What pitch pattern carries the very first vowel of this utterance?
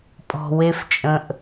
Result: low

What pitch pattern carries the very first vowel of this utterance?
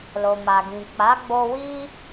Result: low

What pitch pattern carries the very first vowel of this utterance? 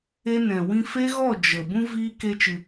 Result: high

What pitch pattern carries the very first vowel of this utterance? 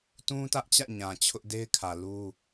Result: high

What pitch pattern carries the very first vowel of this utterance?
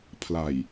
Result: low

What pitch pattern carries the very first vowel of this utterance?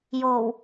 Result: low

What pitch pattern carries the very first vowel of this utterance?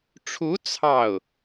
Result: rising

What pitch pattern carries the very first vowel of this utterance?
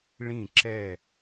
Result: falling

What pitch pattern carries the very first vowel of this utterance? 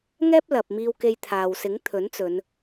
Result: high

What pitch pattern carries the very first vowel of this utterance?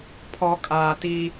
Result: low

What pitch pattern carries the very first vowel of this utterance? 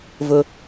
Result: low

